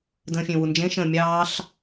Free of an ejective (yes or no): yes